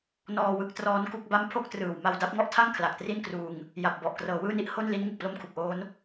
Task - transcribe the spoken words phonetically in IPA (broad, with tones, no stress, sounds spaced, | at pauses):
n ɔː˧ w ɯ˦˥ k̚ t r ɔː˦˥ n k u˥˩ k̚ b a˥˩ m pʰ o˥˩ k̚ t r ɯː˨˩ w m a˧ w d a˦˥ p̚ ŋ ɔ˥˩ ʔ tʰ a˥˩ ŋ kʰ l a˨˩ k̚ t r i˥˩ n k r uː˧ ŋ | j a˨˩ p̚ b ɔ˨˩ ʔ k r ɤː˩˦ w ɯː˥˩ n i˥˩ ʔ h o˥˩ n l i˦˥ n ŋ ɯ˨˩ k̚ p l o˥˩ m kʰ u˨˩ k̚ ʔ oː˦˥ n